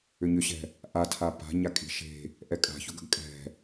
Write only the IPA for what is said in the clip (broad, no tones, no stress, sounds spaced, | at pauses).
ʏ ɲ ʏ ɕ ɛ̤ | ʔ a tʰ a p a̤ ɲ a kʼ i̤ ʃ e̤ | ʔ ɛ kʼ a̤ ç ʊ ɡ ə̤ ɡ kʼ ɛ̤